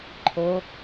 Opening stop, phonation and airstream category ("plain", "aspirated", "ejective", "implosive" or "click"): click